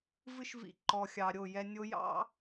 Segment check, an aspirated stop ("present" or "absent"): absent